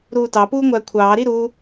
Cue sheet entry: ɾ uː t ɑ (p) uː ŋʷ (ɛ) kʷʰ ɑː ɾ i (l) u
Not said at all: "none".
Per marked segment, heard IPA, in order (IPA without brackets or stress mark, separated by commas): p, æ, ɾ